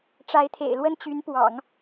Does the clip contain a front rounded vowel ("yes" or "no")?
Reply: yes